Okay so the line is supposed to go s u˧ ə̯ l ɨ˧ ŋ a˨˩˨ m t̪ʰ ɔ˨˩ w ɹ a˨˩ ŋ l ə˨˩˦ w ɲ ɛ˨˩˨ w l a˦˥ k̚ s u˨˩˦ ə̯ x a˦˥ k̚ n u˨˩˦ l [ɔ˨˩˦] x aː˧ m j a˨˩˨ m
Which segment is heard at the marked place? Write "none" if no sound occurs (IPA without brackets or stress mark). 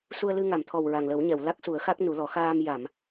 ɔ˨˩˦